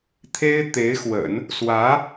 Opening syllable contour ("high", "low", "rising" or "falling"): high